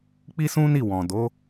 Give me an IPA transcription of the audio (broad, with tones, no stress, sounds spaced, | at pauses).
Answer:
k͡p i˦ s ũ˦ n i˦˨ w ɔ̃˨ d o˨˦